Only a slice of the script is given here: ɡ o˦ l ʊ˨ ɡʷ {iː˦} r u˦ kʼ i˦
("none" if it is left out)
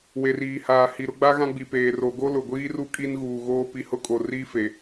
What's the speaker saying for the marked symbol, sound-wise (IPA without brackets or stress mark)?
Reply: iː˦